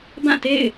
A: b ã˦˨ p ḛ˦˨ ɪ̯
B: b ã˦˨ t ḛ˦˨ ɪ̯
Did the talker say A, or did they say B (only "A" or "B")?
B